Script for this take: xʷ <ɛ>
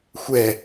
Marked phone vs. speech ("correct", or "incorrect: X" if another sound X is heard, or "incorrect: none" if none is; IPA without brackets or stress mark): correct